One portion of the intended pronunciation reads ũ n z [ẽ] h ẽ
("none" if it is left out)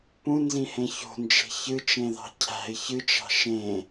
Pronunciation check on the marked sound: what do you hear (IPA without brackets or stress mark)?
ĩ